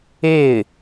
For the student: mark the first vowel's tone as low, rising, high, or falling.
falling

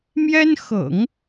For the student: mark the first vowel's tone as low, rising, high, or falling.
high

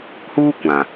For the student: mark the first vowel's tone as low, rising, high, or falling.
high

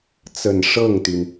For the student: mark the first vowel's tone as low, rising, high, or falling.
low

